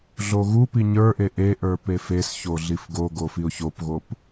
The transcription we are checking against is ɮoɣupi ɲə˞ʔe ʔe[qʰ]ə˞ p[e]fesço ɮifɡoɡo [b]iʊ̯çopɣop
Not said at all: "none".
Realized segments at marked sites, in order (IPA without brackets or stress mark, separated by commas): ʔ, e, f